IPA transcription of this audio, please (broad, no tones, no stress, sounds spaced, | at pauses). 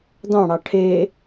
d ɑ̃ ɽ ɑ ʈʰ e